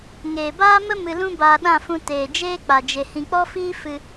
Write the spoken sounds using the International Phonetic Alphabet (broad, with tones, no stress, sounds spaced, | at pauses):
ŋ eː˨ b aː˦ m ə˦ m ɨ˧ l ũ˦ b aː˧ ɗ ã˦˨ f ũ˧ t eː˨ d͡ʒ eː˦ k͡p a˨ d͡ʒ e˨ h ĩ˨ k͡p ɔ˦ f iː˦ f ɨ˧